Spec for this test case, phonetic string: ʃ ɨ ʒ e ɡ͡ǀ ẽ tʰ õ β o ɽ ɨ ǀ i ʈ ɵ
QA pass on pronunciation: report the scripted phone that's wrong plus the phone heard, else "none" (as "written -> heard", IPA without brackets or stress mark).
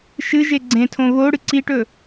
none